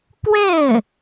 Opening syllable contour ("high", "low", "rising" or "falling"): falling